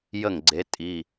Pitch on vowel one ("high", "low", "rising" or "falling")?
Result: falling